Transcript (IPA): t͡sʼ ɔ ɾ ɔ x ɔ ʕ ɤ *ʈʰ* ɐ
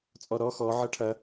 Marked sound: correct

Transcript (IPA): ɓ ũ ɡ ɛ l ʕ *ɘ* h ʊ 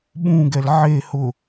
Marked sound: incorrect: e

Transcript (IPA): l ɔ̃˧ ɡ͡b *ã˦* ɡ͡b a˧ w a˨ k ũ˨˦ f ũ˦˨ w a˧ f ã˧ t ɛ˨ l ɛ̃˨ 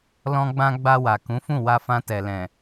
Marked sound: incorrect: ã˧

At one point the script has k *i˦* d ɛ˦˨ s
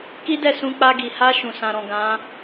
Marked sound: correct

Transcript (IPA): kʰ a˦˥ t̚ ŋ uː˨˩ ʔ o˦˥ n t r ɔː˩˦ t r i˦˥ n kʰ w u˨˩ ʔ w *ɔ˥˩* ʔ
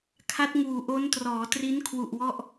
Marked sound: correct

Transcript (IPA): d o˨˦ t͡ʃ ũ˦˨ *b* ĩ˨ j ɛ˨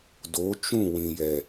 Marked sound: incorrect: w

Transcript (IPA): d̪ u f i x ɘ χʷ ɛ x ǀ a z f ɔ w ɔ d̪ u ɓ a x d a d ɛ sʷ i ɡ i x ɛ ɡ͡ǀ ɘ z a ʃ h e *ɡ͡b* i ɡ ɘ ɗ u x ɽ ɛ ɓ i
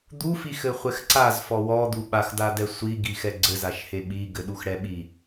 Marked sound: incorrect: ɓ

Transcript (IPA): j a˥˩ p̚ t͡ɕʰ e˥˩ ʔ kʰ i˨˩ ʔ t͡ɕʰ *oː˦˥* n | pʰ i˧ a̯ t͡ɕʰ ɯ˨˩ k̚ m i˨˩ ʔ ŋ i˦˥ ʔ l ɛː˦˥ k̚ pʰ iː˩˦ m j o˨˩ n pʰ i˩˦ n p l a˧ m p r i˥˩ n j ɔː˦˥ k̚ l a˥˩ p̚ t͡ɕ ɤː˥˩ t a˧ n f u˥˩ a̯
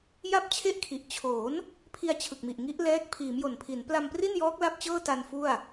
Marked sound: incorrect: oː˩˦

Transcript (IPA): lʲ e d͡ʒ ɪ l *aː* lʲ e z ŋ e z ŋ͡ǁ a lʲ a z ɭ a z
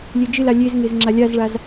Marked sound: incorrect: a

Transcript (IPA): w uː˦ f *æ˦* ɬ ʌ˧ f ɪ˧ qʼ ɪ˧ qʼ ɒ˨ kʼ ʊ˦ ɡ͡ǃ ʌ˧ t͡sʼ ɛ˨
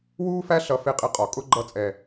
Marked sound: correct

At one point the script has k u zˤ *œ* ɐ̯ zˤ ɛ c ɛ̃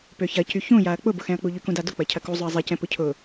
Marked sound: correct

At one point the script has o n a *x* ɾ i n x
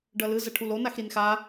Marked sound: correct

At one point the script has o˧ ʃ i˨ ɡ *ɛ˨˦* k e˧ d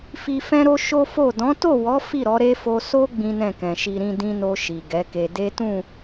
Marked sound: correct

